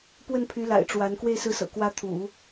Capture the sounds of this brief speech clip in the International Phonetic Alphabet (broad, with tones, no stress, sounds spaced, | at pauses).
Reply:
p w ə˥˩ n pʰ y˧˥ l a̰˨˩ ɪ̯ ʈ͡ʂ w a˧˥ n k w e˥˧ ɪ̯ s ɹ̩˥˩ s ɤ̰˨˩ k w ä˧˥ t̪ʰ ṵ˨˩˦